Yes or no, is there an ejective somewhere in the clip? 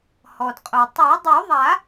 yes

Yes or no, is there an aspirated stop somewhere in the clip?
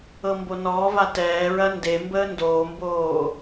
no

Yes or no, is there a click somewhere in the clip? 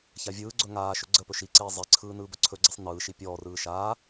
yes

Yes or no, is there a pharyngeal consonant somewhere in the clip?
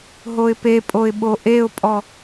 no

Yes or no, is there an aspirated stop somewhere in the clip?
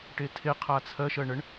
yes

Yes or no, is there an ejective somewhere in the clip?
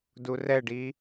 no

